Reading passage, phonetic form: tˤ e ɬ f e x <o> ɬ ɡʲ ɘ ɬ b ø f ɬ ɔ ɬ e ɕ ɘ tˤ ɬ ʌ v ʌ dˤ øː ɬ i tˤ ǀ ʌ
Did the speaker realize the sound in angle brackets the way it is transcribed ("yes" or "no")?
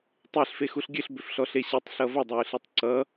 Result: no